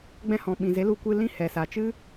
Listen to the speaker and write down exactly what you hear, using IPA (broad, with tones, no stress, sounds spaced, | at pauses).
ɡ͡b ɛ̃˧ h ɔ̃˨ ɓ ĩ˨ z e˨˦ l u˧ kʷ ɨ˧ l ĩ˦ h ɛ˨ s a˨ t͡ʃ ɨ˦